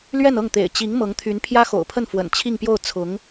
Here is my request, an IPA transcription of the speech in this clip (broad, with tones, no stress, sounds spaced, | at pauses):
l ɥ ɛ˥˧ n ɤ˥˩ ŋ t̪ ḛ˨˩ ɪ̯ t͡ɕ i˧˥ ŋ m ɤ˧˥ ŋ t̪ʰ y˧˥ n pʰ j ä˥ x o̰˨˩ ʊ̯ pʰ ə˥˩ n f w ə̰˨˩ n t͡ɕʰ i˥˧ ŋ p j o˥˩ ʊ̯ t͡sʰ ʊ˧˥ ŋ